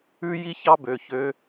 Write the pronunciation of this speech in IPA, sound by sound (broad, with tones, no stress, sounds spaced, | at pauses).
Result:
ʉ˥ j i˥ ç ɑ˥ b ø˩˧˩ ç ø˥